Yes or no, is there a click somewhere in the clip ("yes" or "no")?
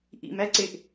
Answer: yes